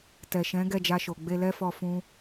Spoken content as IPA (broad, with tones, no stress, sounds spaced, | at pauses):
t ɛ˨ ʃ ɛ̃˨˦ ɡ ɛ˦˨ d͡ʒ a˧ ʃ o˨ ɡ͡b e˧ l ɛ˦ f ɔ˧ f ũ˦